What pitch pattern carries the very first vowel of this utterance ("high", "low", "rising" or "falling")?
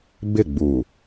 falling